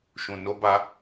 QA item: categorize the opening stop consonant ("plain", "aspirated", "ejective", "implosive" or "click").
plain